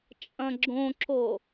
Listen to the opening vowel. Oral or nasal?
nasal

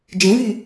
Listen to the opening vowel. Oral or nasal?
nasal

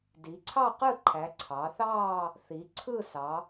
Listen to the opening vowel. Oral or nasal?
oral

